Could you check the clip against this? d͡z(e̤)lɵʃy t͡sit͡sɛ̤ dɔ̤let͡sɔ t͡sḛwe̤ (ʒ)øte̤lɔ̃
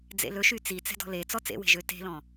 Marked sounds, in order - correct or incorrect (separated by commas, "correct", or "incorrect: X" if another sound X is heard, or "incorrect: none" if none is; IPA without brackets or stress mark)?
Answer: incorrect: ḛ, correct